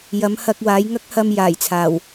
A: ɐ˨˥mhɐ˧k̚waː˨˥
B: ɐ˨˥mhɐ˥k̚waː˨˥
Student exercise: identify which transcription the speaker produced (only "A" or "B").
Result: A